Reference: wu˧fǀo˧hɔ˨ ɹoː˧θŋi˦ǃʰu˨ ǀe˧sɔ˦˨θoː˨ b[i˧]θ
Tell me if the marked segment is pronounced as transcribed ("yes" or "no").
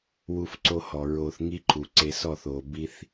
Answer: yes